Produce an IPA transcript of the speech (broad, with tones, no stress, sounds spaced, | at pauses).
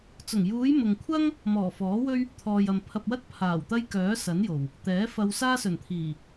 t͡s ʊ˨˩ ŋ j uː˨˧ j m ʊ˨ ŋ kʷʰ ɐ˥ ŋ | m ɔː˨˩ f ɔː˨˥ w ɵ˥ ɥ | t̪ʰ ɔː˨ j ɐ˨ m pʰ ɐ˧ p̚ w ɐ˥ t̚ pʰ aː˨˩ w t̪ ɐ˥ j k œː˨˥ s ɐ˨˥ n j o˨˩ w | t̪ ɛː˨˥ f ɐ˧ w s aː˥ s ɵ˨˩ n t̪ʰ iː˨˩